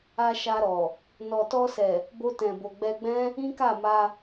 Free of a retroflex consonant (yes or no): yes